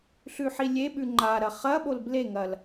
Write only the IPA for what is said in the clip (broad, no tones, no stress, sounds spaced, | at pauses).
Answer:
ɬ ʉ ħ i lʲ e ɓ ʉ ŋ͡ǃ a ɾ ɐ χ ɐ ɓ o l b l e ŋ ɐ l